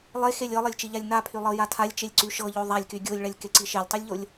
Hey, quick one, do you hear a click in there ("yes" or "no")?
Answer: yes